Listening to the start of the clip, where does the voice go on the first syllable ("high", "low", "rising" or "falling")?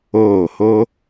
falling